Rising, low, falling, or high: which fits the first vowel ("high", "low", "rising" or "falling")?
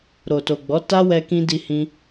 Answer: low